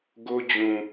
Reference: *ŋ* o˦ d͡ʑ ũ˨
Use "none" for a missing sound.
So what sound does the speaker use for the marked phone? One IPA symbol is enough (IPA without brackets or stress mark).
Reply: ɡ